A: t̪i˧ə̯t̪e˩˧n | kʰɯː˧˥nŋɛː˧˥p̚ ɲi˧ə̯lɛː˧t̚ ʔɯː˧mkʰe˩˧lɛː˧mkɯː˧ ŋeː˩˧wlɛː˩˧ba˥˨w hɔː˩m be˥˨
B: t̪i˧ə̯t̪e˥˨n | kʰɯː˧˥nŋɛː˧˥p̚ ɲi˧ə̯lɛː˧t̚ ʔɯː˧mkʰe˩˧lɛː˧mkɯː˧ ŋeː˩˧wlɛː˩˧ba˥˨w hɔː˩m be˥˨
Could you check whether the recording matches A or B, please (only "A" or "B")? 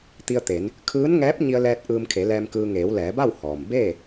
A